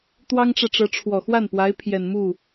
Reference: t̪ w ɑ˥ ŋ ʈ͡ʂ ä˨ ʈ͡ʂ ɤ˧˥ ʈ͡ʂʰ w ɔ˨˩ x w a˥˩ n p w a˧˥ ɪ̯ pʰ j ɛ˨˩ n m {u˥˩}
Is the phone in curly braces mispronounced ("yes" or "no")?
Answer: no